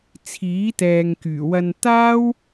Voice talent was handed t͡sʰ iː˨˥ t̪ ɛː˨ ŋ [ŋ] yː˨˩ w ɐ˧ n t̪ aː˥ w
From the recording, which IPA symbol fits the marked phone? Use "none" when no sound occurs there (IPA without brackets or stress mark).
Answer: k